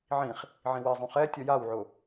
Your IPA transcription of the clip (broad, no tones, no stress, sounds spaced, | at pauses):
ʕ ĩ χ | ʕ ĩ w i zˤ ũ χ ɛ tʲ ɔ j a w ʕ ʊ